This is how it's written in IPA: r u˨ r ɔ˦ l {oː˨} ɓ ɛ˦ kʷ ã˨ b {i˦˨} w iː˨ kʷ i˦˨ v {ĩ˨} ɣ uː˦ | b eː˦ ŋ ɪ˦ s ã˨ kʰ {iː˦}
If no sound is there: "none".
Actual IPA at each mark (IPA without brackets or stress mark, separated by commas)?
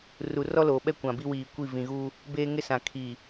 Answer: oː˨, i˦, ĩ˨, iː˨